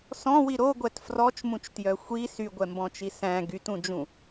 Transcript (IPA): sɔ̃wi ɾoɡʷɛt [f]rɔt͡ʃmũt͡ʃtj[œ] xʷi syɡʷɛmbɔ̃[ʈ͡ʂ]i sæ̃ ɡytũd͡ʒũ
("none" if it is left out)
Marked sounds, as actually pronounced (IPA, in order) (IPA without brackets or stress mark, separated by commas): f, œ, t͡ʃ